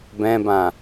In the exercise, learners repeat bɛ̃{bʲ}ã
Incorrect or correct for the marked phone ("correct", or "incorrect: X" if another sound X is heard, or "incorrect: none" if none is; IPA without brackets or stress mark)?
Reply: incorrect: b